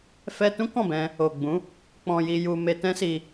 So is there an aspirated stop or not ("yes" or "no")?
no